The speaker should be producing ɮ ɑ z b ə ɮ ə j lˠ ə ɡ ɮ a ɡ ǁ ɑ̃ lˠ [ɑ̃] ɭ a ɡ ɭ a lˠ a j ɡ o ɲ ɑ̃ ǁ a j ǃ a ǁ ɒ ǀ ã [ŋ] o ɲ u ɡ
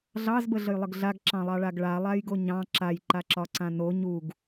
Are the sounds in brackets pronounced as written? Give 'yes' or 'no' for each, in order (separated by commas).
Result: no, no